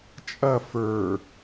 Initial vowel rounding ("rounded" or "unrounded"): unrounded